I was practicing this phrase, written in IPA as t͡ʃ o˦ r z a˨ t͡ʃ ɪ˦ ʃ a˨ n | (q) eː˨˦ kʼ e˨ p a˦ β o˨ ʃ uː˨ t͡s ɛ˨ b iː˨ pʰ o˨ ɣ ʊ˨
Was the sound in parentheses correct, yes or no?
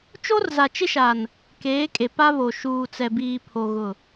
no